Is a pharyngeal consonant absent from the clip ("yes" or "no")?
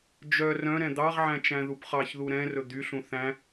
no